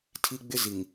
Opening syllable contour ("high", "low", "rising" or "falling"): high